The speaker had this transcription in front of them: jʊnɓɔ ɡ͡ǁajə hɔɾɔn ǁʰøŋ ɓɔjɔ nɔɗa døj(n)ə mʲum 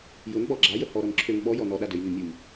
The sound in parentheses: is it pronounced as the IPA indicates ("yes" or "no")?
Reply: yes